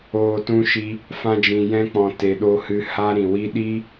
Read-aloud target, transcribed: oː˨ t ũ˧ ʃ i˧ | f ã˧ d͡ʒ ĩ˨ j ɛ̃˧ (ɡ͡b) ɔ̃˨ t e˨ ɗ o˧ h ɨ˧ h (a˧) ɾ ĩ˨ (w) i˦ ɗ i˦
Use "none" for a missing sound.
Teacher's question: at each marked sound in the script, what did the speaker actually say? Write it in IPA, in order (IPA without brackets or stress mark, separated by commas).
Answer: k͡p, a˧, w